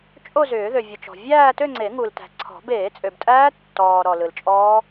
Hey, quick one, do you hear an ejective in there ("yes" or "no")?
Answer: yes